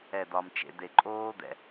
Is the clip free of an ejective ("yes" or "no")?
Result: no